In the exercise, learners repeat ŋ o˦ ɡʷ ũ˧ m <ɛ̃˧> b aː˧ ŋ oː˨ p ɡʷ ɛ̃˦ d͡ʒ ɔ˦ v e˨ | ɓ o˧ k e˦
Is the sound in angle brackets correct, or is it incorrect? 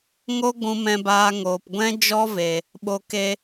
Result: correct